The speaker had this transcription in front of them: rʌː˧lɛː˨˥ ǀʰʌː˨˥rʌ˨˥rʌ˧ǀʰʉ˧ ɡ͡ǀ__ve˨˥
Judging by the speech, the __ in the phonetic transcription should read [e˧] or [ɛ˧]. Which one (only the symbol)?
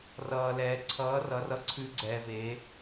ɛ˧